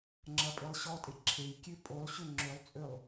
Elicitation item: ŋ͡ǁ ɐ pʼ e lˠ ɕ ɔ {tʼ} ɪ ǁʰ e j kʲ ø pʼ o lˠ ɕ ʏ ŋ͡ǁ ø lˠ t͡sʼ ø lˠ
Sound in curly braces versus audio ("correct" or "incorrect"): correct